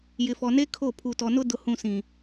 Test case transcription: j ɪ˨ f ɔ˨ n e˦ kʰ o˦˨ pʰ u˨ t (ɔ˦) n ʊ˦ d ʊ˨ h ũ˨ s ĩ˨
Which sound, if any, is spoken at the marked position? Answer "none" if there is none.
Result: ɔ˨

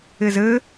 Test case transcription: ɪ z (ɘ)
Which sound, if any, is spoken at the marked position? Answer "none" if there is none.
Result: ɘ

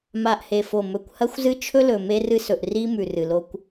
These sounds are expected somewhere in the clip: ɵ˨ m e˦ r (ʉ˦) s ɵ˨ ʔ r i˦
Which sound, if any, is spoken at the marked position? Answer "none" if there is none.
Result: ɨ˦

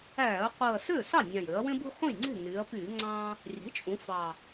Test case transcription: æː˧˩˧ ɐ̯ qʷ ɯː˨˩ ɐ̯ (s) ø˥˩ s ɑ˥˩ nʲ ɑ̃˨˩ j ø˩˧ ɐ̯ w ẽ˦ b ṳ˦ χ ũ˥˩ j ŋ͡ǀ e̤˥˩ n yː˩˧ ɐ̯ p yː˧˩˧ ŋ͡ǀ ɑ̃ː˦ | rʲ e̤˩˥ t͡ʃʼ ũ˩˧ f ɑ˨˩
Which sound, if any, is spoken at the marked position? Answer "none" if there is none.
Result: s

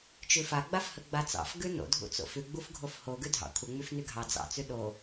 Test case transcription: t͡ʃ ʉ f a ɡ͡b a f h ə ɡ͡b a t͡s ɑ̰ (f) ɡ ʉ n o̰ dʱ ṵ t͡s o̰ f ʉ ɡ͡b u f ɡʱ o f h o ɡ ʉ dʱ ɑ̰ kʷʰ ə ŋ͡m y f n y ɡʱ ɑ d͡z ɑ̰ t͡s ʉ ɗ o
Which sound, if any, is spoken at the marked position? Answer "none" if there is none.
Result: f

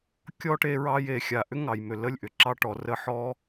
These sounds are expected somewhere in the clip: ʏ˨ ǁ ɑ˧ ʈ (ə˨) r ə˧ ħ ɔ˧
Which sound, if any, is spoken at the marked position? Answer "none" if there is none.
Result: ɔ˨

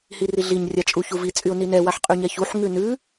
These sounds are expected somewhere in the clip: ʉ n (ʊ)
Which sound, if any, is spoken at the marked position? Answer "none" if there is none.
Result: ʉ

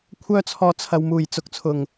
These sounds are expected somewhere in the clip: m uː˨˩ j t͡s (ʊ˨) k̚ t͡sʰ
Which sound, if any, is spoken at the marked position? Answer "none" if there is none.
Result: ʊ˨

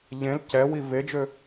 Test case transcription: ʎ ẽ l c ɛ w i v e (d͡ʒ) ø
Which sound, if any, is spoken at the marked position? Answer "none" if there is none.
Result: d͡ʒ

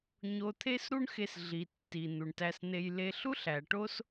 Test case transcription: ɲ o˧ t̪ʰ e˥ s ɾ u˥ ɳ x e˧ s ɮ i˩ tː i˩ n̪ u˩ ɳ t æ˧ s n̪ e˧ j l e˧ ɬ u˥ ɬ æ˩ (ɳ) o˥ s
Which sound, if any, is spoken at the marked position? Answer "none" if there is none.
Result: ʈ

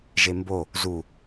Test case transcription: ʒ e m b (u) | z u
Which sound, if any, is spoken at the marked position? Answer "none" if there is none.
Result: o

